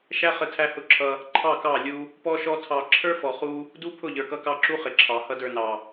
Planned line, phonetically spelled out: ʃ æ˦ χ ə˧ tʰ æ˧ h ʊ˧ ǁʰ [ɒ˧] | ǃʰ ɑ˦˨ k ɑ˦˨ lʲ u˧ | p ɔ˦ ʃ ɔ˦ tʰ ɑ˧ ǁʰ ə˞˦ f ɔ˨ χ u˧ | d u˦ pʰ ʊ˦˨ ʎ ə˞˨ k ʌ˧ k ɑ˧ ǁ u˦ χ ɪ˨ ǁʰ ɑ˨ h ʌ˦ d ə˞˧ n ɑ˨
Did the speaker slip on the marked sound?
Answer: yes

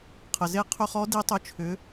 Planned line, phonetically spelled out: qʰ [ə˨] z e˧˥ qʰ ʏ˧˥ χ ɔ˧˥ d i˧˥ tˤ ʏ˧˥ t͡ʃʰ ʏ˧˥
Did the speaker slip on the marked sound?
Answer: no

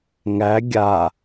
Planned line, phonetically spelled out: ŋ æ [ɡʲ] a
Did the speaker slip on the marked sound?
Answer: no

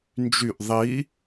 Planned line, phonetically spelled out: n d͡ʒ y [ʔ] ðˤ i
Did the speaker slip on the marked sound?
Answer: no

